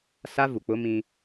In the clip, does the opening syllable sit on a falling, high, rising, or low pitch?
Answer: high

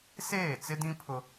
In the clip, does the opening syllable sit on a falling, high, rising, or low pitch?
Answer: falling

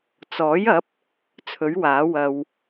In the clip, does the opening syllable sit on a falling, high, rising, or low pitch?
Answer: rising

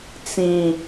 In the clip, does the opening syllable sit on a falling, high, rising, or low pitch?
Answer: low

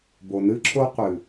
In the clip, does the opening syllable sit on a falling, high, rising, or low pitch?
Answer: low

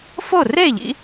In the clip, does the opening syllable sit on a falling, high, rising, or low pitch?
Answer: falling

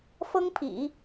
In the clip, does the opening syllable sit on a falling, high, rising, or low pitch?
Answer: high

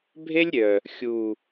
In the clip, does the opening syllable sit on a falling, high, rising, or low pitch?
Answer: high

